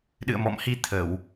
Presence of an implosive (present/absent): present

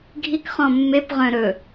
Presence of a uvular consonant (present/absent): present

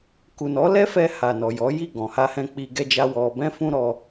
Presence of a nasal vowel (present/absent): present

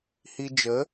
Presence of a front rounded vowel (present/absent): absent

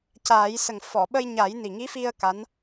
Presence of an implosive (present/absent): present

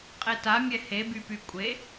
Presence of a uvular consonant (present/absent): present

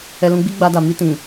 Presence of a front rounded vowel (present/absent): absent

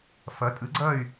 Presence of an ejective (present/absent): present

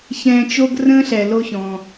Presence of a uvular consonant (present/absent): absent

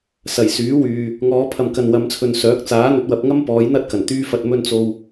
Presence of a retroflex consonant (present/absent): absent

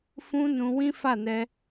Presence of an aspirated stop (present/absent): absent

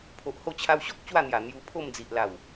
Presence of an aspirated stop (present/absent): present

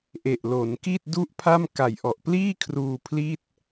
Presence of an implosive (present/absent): absent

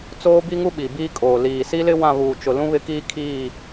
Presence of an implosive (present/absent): present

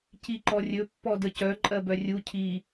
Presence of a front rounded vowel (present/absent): present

